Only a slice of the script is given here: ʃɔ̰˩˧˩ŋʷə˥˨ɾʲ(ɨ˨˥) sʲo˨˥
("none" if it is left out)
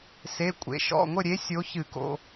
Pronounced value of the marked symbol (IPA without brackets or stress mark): e˨˥